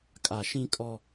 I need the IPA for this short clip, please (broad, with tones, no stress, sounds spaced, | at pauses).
kʼ a˨ ʃ ĩ˦ kʼ ɔ˦